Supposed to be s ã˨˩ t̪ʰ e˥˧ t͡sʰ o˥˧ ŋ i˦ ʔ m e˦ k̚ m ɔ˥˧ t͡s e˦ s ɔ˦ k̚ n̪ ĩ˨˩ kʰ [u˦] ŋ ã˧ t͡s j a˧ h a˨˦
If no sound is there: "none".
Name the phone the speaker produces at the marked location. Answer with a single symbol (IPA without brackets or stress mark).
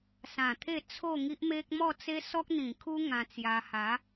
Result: u˦